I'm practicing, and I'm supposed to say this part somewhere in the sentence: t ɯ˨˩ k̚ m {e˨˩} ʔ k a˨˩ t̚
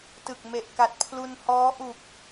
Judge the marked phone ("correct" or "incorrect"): correct